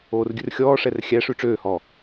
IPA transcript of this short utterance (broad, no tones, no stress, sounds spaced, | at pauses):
oː r ɡʲ ʉ r xʲ ɔː ʂ ɛ r xʲ æ ʂ ʉ ʈ͡ʂ øː h ɔ